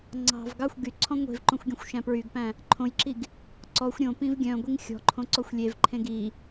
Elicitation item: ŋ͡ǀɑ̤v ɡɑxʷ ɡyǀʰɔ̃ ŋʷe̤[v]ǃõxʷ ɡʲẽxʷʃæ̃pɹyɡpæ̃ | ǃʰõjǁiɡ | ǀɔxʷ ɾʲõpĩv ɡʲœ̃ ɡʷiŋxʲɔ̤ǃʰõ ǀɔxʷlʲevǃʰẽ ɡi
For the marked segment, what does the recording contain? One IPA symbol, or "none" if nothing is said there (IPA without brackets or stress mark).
v